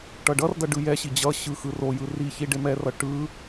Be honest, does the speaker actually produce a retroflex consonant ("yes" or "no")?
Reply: yes